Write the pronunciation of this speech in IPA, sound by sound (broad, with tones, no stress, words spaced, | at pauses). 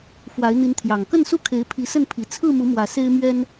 fwa˨˦ɪ̯n̪i˨˦nt̪ʰjɑ˨˩ŋ kə˥˨nsu˥˨kʰe˨˦ɪ̯ pʰi˨˦sə˥˨npʰi˨˩ t͡sʰɹ̩˥˨mu˨˦ mwä˨˩ se˦ɪ̯mɥɛ˦n